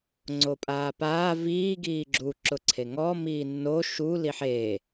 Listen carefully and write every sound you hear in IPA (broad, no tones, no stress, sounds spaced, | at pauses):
ŋ͡ǀ o pʼ aː p aː v iː ɡ iː ɡ͡ǁ u ǁ ʊ ǀʰ e ŋ ɔ m iː nː o ʃ u l i ħ eː